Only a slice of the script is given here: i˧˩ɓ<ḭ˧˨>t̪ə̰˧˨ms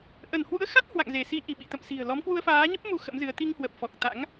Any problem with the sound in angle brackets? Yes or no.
no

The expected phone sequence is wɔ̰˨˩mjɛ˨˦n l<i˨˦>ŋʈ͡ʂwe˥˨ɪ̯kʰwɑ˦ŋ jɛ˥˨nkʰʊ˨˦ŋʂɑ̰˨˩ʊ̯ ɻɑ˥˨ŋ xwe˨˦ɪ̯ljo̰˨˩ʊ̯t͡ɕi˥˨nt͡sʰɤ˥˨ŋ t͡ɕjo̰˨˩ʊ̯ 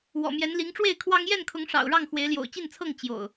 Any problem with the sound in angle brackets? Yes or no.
no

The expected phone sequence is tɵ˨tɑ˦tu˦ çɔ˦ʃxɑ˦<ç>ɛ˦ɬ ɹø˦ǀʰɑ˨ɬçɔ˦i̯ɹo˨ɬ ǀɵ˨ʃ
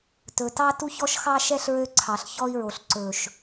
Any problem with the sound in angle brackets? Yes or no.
yes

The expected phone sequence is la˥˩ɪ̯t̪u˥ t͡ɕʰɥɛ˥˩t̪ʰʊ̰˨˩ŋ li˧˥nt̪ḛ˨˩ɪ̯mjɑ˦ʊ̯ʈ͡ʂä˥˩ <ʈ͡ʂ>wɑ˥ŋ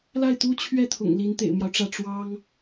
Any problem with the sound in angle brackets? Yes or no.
no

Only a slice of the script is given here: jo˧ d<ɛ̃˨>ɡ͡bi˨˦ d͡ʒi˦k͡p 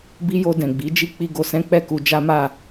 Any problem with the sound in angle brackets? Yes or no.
no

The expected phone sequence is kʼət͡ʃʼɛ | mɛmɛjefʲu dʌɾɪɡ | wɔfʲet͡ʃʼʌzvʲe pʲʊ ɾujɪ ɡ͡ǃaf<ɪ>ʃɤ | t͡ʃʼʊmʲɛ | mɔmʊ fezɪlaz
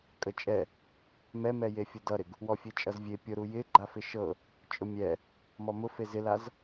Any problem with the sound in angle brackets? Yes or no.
no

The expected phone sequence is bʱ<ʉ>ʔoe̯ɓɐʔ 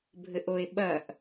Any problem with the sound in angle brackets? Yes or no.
yes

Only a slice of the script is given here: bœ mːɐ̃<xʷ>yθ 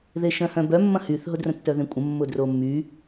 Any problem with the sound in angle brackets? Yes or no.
yes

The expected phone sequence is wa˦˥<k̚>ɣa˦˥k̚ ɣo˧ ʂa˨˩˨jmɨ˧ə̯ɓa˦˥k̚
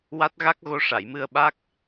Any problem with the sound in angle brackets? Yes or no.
yes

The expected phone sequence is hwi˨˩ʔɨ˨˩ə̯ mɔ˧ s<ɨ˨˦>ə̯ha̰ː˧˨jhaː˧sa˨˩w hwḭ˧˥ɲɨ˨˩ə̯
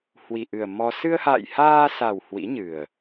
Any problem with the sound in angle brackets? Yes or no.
yes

